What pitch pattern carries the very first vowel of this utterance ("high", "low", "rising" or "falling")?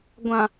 low